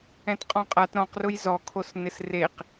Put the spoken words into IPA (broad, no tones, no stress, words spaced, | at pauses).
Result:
ɛ̃tqʼɔ̃qʼat ɾɔ̃qrʊj zɔkʰos nɪsreq